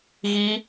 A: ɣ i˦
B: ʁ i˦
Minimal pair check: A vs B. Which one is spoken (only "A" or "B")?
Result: A